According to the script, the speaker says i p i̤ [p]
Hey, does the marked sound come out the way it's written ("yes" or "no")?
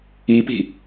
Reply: no